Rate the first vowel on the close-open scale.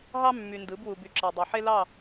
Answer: open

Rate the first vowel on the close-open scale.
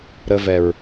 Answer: mid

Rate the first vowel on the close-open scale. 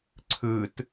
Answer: close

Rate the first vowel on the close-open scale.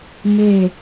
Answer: mid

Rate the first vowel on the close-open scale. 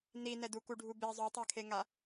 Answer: close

